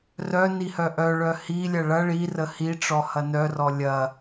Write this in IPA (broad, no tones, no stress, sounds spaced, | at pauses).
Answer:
r œ n i h œ ʔ œ ɭ œ h i lʲ ɐ ɭ ɐ ɭ i r ə h i ʈ͡ʂ ɔ h ɐ n œ r ɔ lʲ ɐ